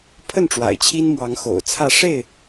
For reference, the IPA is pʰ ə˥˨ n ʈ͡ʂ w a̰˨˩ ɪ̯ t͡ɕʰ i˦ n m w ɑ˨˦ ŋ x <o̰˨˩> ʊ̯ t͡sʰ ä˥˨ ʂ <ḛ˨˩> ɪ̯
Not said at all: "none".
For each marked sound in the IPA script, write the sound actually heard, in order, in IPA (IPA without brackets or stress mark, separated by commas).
o̰˨˩, e˥˨